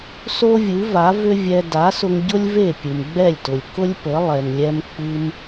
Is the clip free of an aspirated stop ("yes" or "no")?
yes